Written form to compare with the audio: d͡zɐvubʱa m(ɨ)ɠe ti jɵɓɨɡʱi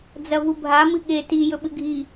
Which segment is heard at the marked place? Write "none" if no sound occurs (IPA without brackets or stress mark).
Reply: ɨ